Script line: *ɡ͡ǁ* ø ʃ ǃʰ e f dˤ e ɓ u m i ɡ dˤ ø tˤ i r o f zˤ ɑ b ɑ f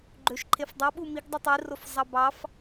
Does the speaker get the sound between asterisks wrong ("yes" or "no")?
yes